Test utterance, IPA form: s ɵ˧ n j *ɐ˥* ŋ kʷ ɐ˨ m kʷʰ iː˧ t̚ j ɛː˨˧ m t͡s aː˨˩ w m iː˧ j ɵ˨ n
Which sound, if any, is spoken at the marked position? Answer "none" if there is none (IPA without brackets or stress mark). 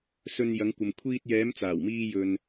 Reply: ɐ˨˧